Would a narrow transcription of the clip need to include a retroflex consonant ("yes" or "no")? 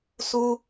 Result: no